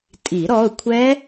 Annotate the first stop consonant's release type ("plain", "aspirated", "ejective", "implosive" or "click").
ejective